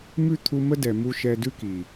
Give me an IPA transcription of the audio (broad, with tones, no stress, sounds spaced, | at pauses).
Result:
m ʉ˦˨ t̪ʰ u˧ m ə˦ d ɛ˨ m u˧ ʃ ɛ˧ d ʉ˦ k i˨